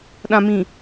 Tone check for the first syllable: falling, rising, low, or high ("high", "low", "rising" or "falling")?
low